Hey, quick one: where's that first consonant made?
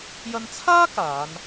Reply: palate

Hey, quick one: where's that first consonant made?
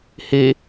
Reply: throat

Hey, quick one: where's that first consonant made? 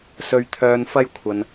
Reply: tongue tip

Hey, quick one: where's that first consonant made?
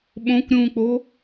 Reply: lips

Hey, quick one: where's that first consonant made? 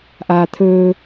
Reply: throat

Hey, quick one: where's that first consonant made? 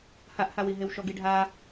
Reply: throat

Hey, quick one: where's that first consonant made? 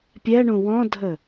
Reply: lips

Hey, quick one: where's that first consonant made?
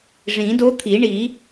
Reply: retroflex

